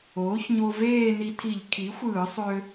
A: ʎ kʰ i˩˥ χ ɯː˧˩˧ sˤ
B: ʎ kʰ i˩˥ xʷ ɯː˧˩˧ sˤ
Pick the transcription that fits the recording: B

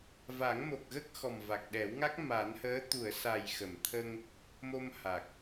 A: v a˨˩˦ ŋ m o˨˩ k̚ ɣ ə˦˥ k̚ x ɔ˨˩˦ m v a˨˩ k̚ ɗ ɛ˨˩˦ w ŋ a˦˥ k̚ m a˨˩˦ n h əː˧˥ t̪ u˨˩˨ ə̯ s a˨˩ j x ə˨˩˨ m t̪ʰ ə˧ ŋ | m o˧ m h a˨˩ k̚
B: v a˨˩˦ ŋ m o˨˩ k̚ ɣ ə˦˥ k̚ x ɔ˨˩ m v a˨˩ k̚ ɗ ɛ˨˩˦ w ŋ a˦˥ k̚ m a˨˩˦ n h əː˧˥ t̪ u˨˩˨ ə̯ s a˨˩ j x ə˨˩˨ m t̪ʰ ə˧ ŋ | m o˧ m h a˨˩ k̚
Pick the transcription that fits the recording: B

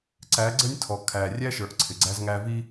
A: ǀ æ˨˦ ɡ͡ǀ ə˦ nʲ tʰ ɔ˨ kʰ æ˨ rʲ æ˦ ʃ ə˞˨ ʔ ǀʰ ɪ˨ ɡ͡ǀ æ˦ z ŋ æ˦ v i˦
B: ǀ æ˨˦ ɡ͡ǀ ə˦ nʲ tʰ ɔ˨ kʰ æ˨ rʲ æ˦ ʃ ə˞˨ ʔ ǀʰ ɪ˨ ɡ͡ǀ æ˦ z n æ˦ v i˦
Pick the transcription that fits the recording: A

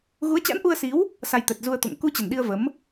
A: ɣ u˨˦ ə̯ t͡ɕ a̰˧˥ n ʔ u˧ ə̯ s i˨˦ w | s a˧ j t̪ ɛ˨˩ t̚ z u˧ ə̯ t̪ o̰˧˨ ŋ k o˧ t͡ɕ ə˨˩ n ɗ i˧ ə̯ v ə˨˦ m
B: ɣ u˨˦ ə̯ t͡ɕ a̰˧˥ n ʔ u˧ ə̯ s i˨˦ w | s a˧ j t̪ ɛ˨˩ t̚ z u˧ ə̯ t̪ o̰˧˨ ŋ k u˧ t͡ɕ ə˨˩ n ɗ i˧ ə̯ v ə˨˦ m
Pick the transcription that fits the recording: B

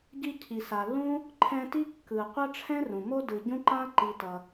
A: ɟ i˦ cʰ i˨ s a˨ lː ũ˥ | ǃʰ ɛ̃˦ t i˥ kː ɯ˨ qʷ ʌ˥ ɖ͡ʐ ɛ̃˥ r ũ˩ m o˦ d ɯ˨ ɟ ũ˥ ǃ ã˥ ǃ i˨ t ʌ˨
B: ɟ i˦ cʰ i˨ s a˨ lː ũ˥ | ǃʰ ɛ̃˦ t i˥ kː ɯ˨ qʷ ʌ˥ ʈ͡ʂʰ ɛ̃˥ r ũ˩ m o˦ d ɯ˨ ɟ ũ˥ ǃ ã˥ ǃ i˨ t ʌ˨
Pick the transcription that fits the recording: B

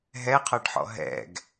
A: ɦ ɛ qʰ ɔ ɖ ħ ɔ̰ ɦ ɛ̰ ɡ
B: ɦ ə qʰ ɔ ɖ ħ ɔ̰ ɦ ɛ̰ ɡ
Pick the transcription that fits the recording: A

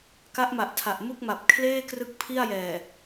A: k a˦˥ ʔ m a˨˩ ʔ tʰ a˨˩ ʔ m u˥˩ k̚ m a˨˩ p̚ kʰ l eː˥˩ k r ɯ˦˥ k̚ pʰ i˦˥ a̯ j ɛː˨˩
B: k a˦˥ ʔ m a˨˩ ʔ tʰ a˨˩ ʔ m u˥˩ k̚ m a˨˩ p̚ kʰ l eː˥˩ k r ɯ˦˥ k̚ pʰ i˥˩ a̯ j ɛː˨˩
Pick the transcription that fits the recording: B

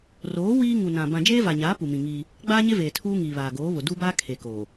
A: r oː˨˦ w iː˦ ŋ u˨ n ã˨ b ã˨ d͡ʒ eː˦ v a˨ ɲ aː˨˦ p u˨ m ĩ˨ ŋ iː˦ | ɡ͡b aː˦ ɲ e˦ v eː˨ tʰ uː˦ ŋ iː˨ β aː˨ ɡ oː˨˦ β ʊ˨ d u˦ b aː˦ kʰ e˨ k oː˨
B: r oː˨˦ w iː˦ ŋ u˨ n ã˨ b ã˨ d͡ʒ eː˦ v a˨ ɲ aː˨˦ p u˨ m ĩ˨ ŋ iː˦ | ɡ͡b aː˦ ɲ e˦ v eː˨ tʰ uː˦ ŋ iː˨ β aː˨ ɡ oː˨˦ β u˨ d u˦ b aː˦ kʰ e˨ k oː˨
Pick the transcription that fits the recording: A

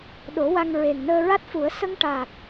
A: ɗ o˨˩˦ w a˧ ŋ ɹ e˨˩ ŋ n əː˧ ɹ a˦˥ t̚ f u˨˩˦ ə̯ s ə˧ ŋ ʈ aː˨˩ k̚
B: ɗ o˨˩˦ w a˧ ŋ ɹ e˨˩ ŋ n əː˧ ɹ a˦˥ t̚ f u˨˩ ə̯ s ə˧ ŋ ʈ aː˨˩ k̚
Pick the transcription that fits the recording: A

